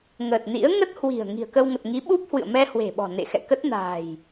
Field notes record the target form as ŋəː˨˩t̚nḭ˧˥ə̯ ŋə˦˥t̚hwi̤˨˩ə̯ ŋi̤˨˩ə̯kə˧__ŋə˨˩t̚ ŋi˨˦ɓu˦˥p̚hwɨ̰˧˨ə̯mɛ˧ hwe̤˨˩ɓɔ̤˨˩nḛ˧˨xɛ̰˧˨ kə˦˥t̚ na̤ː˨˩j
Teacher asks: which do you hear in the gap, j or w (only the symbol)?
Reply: w